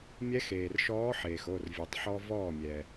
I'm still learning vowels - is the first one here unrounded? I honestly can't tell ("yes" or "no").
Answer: yes